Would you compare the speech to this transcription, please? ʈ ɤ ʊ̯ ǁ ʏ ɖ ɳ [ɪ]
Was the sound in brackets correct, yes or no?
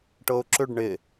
yes